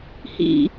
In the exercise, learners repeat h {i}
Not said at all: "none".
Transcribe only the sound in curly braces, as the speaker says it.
ḭ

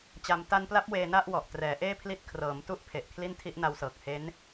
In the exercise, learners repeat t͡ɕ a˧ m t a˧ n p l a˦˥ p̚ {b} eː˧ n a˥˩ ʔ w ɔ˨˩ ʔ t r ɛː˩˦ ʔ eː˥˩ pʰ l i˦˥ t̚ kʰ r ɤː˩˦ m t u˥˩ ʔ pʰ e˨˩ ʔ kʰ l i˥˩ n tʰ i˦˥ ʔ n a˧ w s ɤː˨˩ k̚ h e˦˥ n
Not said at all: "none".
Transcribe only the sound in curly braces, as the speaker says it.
w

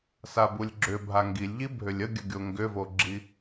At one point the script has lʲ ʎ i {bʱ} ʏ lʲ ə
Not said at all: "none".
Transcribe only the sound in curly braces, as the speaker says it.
bʱ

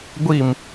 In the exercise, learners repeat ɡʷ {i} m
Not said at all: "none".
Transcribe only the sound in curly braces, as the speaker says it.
i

